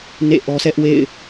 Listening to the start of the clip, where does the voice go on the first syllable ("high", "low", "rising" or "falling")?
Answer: falling